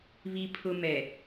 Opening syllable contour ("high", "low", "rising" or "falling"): high